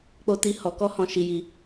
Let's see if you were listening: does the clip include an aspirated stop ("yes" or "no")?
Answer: no